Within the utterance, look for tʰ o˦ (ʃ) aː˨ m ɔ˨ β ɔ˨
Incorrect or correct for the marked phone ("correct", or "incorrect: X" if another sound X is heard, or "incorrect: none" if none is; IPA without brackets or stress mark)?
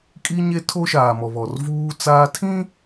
correct